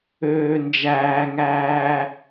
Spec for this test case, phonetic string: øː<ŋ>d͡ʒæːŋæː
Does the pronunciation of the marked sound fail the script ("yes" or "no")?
yes